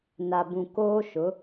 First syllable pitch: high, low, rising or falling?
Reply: low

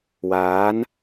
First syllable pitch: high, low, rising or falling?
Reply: rising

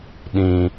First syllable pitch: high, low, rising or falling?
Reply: low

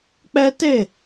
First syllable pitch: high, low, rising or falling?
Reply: high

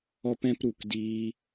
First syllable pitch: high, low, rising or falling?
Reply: high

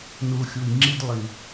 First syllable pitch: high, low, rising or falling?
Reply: low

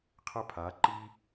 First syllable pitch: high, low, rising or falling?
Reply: high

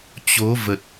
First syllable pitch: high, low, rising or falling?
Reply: rising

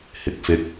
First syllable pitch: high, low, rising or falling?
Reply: rising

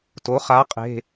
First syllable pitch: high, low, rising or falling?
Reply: rising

